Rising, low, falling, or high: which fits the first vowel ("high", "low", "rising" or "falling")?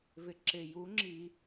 low